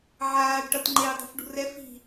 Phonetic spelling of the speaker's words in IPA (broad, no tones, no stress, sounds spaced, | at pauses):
ʕ aː ɖ ʈ ʌ t ŋ͡ǃ eː dˤ ṳ f ɖ ṳ r ɛ f i̤